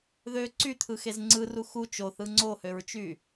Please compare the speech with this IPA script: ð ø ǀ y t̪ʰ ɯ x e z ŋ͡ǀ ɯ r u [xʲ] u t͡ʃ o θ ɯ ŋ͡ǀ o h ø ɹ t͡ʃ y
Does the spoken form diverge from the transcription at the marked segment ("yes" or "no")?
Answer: yes